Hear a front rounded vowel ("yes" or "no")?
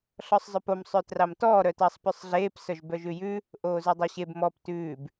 yes